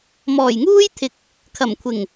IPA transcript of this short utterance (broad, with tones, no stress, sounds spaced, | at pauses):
m ɔː˨˩ j ŋ uː˥ j t̪ʰ ɪ˨ k̚ | kʰ ɐ˨˩ m kʷʰ ɪ˨˩ ŋ